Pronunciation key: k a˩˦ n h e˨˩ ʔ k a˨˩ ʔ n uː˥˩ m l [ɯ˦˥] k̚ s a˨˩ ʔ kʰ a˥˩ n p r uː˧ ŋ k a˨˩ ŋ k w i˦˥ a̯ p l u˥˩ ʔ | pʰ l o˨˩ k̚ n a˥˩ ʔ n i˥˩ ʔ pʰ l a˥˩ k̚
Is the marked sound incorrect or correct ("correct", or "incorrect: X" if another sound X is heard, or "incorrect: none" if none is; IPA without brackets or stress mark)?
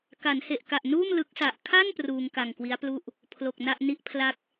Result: correct